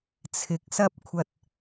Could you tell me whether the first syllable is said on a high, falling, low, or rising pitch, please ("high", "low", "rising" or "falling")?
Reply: rising